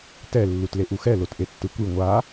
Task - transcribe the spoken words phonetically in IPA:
tɛ lːutleʔuxɛ lotʔetːɯkʷi ŋʷa

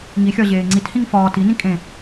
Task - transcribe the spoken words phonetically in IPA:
ŋixʲɒ ʑeːŋ͡ǀithĩŋ fɒːt inĩ kʼẽ

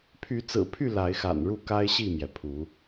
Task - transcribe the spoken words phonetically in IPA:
pʰy˨˦t͡sɹ̩˨˩pʰy˥˨ la˨˦ɪ̯xa̰˨˩n ɻu˥˨ka˦ɪ̯ɕi˥˨mjɛ˩ pʰu˨˦

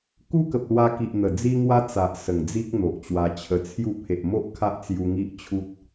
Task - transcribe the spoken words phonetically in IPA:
ku˦kə˨p̚lwa˧ki˨ʔ n̪ə˨˩d͡zi˦ŋwa˦ t͡sa˨ʔsə˨˩ŋd͡zi˦k̚ n̪o˨ʔt͡ɕwa˧t͡ɕʰə˧t͡sʰju˥˧ pʰe˨ʔmo˦ʔ kʰa˦ʔt͡sju˧ŋi˦ʔ t͡ɕʰu˦t̚

